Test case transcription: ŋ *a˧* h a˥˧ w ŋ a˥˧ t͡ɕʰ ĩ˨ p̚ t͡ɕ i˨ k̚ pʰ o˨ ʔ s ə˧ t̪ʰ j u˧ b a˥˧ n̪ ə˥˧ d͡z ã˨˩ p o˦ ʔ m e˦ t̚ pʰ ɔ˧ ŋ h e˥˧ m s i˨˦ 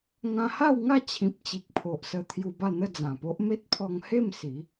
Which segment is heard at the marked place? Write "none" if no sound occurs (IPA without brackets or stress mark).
ã˧